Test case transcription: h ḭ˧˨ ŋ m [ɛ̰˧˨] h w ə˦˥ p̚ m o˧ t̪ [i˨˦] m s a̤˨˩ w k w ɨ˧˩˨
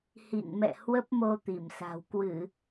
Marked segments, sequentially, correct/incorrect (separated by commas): correct, incorrect